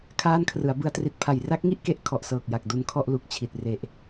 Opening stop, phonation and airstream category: aspirated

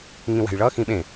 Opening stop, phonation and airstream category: implosive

